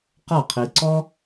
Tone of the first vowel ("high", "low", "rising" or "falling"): falling